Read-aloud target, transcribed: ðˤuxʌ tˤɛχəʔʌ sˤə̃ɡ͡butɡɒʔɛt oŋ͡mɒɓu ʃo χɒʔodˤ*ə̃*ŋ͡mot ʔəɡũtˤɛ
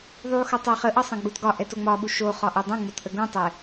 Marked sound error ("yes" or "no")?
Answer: no